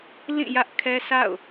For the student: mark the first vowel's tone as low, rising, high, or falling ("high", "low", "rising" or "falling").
falling